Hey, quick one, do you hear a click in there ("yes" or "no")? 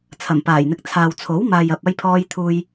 no